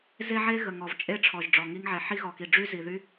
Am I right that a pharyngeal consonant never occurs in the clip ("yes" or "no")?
no